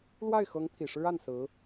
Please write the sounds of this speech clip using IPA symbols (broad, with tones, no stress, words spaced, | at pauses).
lwa˥˩ɪ̯xɤ˧˥ŋ t̪ʰi˨˩ʂɻ̩˥a˥˩n sɹ̩˧˥